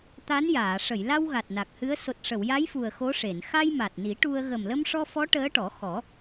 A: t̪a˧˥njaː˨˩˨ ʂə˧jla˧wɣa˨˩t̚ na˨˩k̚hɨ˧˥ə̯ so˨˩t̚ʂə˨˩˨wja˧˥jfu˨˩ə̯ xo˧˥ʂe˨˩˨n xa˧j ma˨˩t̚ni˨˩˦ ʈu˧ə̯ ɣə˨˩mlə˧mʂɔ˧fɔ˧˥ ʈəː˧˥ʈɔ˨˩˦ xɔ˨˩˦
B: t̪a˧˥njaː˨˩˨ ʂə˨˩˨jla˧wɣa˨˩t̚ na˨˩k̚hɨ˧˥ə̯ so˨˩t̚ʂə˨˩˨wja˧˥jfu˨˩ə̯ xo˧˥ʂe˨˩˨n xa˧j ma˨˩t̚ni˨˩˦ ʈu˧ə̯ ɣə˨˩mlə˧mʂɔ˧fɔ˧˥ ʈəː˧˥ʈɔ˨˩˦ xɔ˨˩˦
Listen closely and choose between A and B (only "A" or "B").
B